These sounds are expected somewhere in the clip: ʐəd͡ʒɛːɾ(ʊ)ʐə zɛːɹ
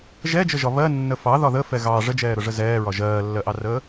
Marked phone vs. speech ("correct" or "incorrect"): correct